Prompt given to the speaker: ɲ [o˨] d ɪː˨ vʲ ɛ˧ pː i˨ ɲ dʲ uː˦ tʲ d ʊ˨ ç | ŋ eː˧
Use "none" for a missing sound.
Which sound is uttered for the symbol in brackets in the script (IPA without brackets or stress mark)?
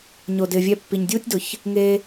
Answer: o˨